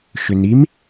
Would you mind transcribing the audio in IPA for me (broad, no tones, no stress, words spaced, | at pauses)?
ʃʏnim